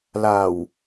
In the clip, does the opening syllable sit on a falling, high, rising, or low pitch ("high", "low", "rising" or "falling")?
low